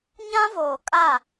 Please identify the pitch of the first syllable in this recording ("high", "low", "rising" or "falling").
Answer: high